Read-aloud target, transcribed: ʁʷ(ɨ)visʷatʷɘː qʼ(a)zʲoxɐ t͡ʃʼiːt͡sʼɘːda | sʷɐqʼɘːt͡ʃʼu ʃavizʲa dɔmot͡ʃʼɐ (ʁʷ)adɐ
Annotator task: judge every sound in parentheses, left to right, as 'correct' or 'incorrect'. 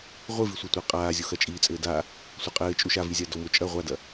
correct, incorrect: aː, correct

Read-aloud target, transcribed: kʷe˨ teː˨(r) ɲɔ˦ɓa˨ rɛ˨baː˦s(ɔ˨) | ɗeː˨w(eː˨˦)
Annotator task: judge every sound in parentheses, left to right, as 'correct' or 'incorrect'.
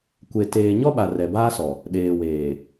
incorrect: none, correct, incorrect: eː˨

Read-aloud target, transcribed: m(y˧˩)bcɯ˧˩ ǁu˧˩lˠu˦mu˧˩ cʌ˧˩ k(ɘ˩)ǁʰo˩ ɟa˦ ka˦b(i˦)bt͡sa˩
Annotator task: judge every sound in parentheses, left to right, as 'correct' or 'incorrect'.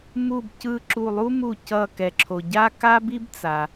incorrect: u˧˩, incorrect: ɛ˩, correct

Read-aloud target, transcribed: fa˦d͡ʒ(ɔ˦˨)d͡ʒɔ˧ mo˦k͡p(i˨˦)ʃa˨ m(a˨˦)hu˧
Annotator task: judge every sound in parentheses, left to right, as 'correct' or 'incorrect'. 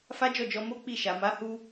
correct, incorrect: i˦˨, correct

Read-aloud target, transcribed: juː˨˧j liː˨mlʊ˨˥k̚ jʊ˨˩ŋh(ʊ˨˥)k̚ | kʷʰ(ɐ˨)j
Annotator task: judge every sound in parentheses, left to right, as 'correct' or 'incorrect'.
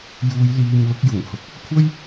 incorrect: ʊ˨, incorrect: ɐ˥

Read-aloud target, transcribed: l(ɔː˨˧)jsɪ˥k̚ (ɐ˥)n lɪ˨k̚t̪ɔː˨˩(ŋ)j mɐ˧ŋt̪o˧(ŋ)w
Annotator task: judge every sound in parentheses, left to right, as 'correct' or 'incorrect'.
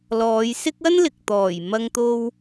correct, correct, incorrect: none, incorrect: none

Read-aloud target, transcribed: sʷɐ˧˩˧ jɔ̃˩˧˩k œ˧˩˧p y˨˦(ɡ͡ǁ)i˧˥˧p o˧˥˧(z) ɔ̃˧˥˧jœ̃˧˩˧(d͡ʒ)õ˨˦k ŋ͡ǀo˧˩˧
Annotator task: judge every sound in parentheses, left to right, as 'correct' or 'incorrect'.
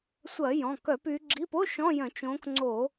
correct, incorrect: ʃ, incorrect: t͡ʃ

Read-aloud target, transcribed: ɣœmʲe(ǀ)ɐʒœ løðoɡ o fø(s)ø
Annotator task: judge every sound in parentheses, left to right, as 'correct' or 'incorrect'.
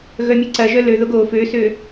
correct, correct

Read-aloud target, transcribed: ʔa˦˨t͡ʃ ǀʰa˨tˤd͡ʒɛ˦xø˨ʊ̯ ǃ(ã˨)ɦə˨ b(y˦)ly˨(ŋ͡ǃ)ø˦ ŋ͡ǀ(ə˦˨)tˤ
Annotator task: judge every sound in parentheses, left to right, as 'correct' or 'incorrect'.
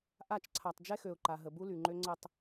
incorrect: a˨, incorrect: u˦, correct, correct

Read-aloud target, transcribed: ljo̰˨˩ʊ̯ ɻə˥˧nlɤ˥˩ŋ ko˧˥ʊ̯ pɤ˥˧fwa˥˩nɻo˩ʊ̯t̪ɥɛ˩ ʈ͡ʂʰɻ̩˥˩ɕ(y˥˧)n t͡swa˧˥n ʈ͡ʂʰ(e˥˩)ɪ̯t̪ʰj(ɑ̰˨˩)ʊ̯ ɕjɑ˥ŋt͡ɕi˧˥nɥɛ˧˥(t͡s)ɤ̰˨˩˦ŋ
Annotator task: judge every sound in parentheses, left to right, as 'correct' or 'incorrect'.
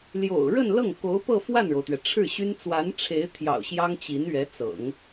incorrect: y˥, incorrect: e˧˥, correct, correct

